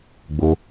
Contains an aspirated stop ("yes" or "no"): no